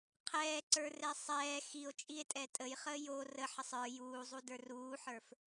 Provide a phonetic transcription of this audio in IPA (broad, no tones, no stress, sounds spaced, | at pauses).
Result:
qʰ ɛː ǀ ə˞ r ɛ sˤ ɛː x i o̯ t͡ʃʼ i e̯ tʼ ɛ tʼ ə j χ əː j o r ə ħ ə sˤ ə˞ j uː zˤ u d ə˞ r uː ħ ə˞ f